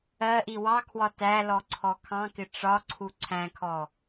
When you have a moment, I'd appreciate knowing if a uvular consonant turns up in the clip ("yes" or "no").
no